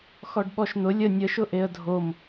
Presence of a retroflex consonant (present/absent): present